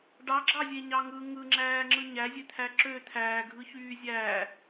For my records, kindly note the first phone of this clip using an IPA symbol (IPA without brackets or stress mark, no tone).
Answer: ɖ